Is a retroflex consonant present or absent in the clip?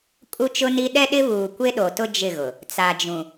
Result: absent